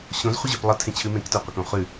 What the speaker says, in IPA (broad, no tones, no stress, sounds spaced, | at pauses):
ɕ õ z χʷ ɪ ʑ ʉ p lˠ ə tʰ ẽ t͡ɕʰ ʉ m ẽ k t œ qʷ ə k õ χ ʉ